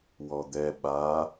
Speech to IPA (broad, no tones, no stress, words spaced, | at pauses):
wɔd̪ɛ ɓa